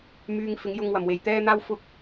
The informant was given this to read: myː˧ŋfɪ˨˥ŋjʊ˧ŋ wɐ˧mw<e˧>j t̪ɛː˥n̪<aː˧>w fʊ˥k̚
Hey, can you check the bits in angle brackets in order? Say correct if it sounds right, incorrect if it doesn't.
correct, incorrect: aː˥

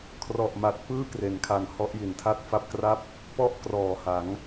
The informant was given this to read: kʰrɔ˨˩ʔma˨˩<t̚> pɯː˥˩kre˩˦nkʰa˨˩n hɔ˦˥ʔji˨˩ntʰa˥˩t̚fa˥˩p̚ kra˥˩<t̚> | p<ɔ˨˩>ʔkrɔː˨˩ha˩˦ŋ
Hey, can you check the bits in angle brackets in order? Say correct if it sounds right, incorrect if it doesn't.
correct, incorrect: p̚, incorrect: ɔ˥˩

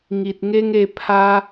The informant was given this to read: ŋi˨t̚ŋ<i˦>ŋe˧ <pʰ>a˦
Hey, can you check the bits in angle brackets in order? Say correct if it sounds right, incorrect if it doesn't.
incorrect: e˦, correct

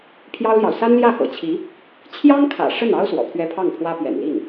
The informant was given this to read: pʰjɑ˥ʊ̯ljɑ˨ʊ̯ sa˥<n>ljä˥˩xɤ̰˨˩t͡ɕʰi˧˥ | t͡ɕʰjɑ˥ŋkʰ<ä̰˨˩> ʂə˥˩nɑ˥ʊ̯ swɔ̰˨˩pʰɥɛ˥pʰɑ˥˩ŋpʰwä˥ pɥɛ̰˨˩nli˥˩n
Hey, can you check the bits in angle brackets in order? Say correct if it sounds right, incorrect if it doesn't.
correct, correct

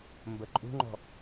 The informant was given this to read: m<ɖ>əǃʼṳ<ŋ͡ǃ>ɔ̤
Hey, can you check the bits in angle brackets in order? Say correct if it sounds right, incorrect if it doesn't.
incorrect: b, correct

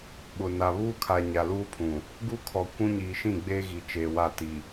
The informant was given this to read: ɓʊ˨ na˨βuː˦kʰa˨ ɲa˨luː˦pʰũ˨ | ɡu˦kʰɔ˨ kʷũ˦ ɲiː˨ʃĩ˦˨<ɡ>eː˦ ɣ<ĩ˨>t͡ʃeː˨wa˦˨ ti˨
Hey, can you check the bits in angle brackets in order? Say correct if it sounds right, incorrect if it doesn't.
incorrect: ɡ͡b, incorrect: i˨

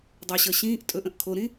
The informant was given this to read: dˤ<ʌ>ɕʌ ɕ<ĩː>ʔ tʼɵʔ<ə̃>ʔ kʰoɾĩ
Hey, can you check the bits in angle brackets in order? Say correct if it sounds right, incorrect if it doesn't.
correct, correct, correct

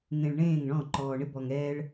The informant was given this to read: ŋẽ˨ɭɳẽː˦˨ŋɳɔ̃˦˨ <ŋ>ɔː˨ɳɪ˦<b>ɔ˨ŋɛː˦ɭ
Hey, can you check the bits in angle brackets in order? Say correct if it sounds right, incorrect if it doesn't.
incorrect: ǃ, correct

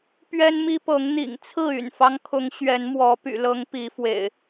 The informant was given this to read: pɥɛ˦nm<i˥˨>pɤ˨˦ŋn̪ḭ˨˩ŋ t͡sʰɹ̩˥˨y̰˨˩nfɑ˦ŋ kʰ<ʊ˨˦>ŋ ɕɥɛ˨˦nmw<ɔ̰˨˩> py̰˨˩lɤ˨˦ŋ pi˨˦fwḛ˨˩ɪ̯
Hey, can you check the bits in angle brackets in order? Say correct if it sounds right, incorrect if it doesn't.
incorrect: i˦, correct, incorrect: ɔ˨˦

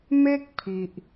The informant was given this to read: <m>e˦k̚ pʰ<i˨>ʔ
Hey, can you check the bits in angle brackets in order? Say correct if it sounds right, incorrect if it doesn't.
correct, correct

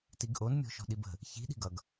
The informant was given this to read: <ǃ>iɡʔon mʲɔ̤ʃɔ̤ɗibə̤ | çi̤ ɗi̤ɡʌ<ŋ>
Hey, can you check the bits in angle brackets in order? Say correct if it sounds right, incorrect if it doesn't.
incorrect: t, incorrect: ɡ

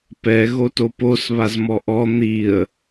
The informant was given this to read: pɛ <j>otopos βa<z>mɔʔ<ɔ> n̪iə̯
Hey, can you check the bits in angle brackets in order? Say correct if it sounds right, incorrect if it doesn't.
incorrect: ɣ, correct, correct

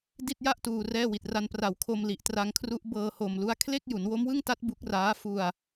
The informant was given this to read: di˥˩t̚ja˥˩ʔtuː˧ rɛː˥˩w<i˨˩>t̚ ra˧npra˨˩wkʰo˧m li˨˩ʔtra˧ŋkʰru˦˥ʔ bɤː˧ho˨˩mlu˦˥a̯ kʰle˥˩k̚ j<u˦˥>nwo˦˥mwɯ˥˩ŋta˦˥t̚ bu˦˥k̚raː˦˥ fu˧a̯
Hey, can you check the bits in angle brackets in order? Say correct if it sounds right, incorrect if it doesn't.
correct, incorrect: u˩˦

